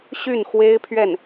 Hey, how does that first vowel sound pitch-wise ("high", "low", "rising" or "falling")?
falling